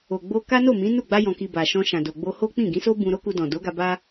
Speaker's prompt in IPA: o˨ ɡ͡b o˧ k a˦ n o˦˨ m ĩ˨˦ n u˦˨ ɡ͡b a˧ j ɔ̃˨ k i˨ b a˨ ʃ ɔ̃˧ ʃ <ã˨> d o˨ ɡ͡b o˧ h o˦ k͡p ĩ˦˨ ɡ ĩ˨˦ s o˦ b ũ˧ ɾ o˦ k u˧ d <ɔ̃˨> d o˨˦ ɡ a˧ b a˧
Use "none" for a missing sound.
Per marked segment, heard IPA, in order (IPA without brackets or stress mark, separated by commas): ã˨, ɔ̃˨